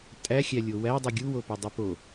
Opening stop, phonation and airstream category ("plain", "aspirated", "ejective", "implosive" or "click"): ejective